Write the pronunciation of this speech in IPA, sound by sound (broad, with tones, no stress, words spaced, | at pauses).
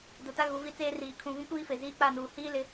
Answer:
dʊ˨ta˦ ɣu˨˦vi˦t͡seː˦riː˨ kʰũ˨ vĩ˦kʷiː˦fe˨ ziː˦k͡pa˦˨nuː˨ hiː˦lɪ˨˦